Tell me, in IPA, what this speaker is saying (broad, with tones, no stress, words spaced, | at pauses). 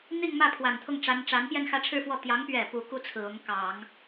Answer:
n̪i˥˧ŋmä˥˩ pʰwa˨˩nt̪ʰʊ˥˩ŋʈ͡ʂa˧˥nʈ͡ʂa˧˥n pjɛ˥˧nxä˥˧ʈ͡ʂʰɻ̩˥˧fwɔ˥˩ t̪jɑ˧˥ŋpɥɛ˨˩ pu˧˥ ku˥t͡sʰɹ̩˨˩ ʊ˧˥ŋ kɑ˨˩˦ŋ